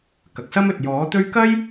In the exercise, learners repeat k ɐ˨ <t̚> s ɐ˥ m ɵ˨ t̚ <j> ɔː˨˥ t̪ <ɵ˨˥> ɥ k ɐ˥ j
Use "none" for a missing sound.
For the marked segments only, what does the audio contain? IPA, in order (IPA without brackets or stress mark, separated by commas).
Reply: k̚, j, ɵ˥